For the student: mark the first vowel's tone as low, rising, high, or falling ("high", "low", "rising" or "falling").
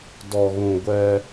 low